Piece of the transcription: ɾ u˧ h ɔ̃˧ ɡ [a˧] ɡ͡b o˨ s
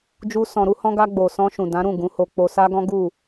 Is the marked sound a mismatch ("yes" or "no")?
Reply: no